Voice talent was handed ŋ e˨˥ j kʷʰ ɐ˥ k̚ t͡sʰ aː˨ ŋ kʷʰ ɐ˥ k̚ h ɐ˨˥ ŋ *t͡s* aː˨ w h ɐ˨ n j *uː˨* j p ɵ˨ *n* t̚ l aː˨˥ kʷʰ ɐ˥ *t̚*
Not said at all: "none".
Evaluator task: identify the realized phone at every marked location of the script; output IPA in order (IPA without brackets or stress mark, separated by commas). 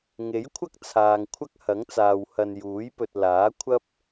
t͡s, uː˨˥, none, p̚